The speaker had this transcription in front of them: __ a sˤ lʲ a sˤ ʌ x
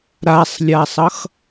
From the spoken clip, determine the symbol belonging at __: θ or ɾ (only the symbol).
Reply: ɾ